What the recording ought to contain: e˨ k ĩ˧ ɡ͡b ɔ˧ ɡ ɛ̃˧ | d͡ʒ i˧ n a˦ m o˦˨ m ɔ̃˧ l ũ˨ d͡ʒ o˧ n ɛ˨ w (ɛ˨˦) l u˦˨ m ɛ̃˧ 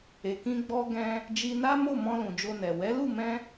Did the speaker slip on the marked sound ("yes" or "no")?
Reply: no